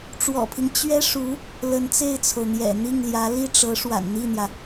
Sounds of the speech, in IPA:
ʈ͡ʂ w ɔ̰˨˩ pʰ i˦ ŋ t͡ɕ ɥ ɛ˥ ʂ u˧˥ | l ə˧˥ n t͡s e˥˩ ɪ̯ t͡sʰ o˩ ʊ̯ n̪ j ɛ̰˨˩ n̪ i˥˩ ŋ l j ä˧˥ l i˥˩ ʈ͡ʂ ɤ˧˥ ʂ w a̰˨˩ n n̪ i˥˩ n̪ j ä˩

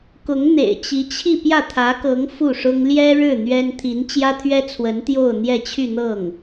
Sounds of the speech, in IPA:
k ʊ˧˥ ŋ n̪ ḛ˨˩ ɪ̯ t͡ɕ i˧˥ t͡ɕʰ i˥˧ p j ä˥˩ t̪ʰ ä˧˥ k ɤ˧˥ ŋ f u˥˩ ʂ ʊ˥ ŋ l j ɛ˥ ɻ ɻ̩˥˩ n̪ ɥ ɛ˥ n t̪ʰ i˧˥ n t͡ɕ j ä˥ t̪ʰ ɥ ɛ˥ t͡sʰ w ə˧˥ n t̪ j o˥˧ ʊ̯ n̪ j ɛ˥˧ t͡ɕʰ y˥˧ n̪ ɤ˥˩ ŋ

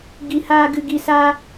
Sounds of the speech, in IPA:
ɡ i˧ h aː˦ ɡ ɨ˧ ɡ i˧ s aː˦

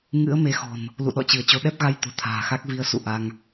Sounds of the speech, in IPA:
ŋ ɨ̰˧˥ ə̯ m e˨˦ x ɔ̤˨˩ n | l ṵ˧˨ ɗ ɔ̰˧˨ t͡ɕ ɨ˧˩ ə̯ t͡ɕ o˧ ɗ ɛ˦˥ p̚ ɣ a˧ j t̪ o̤˨˩ t̪ʰ a̤ː˨˩ x a˦˥ k̚ v i˧ ə̯ s ṵ˧˨ ʔ a˧ ŋ

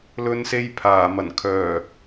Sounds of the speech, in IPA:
l ɵ˧ n s e˧ j pʰ aː˨˩ m ɐ˨˩ n kʰ œː˨˩

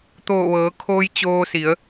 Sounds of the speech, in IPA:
t̪ oː˧˩ ʋ ɤː˩˧ kʰ oː˧ j t͡ɕ oː˧ s i˩˧ ə̯

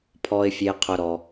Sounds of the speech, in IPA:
pʰ ɔ˩ ɪ̯ fʲ e˩ qʰ ʊ˩ ɾ ɔ˩

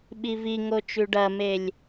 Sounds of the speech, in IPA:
ɓ i v i ŋ o t͡ʃ ʉ ɖ ɐ m e lʲ

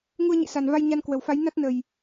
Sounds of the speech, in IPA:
ŋ u˧ ə̯ ɲ ḭ˧˨ s a˨˩ n v a˧ j ɲ a˧ n k w ə˨˩ w f a˨˦ j n a˦˥ t̚ n ə˨˩ j

